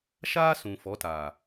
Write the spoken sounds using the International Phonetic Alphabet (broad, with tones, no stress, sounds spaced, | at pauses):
ʃ aː˦ s ũ˨ f ɔ˨˦ t a˨